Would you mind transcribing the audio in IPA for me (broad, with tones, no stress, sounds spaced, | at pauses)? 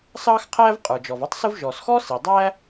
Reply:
s ɑː˥ x qʰ æː˥ v qʼ ə˞˩ d͡ʒ ɔ˩ v ɔ˥ tˤ s ʊ˥ v ʒ ɔ˩ s x ɔ˥ s i˩ dˤ æ˥